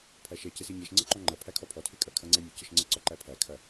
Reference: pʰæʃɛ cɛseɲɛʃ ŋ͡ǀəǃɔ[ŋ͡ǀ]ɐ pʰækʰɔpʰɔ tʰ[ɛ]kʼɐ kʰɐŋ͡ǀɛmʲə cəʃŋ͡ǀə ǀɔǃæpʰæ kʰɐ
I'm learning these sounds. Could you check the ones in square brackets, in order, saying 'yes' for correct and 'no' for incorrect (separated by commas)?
no, no